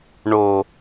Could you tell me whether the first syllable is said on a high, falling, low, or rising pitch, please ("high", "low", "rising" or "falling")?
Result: low